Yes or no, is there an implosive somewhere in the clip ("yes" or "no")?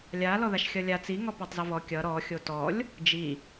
no